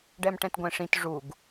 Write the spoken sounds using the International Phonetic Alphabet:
ɖɛmʈɛ̃tɡʷɛ̃ʂĩt ʐuɡ

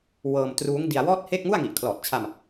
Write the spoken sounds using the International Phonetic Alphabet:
wɤː˧m truː˦˥ŋdi˧a̯wɔː˥˩t̚he˥˩k̚ ŋu˥˩a̯ŋi˨˩ʔkʰlɔː˨˩t̚t͡ɕʰa˧m

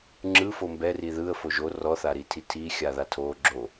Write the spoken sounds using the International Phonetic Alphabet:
ŋ͡ǁɯ fombɛri ðɯə̯ foʒo rɔθaɾitʰi tʰixʲa ðatʰo ɡ͡ǁo

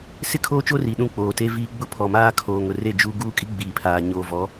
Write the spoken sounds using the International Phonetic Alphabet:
sɪ˦˨kʰoː˦t͡ʃo˦ ri˨ɗũ˦˨ k͡poː˨te˦viː˦ɡ͡bʊ˦ pʰɔ˨maː˦kʰoː˨ ŋʊ˨re˦˨ d͡ʒu˦ ɡuː˦kʼi˦ ɡ͡biː˨pʰaː˨ ɲoː˨vɔ˨˦

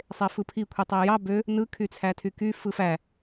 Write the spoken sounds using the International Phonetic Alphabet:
sˤefɯpʰi kʷʰitˤæjɑ bø | nɯ kʰyt͡sʰætʰyky fɯfæ

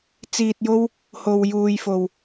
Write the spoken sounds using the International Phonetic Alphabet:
t͡siː˧t̚jo˥w | ho˨wjuː˨jfo˨w

